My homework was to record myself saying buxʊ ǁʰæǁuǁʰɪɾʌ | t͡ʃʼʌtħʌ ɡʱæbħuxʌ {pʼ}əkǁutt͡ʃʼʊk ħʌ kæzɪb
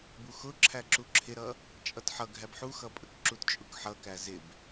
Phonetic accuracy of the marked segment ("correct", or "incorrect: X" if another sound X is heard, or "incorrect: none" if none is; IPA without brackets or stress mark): correct